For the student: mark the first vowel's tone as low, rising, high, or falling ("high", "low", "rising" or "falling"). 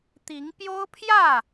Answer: rising